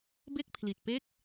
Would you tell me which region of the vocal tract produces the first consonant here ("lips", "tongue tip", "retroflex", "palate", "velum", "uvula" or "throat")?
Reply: lips